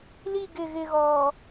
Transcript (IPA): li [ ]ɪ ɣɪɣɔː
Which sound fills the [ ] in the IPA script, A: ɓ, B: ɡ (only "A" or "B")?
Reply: B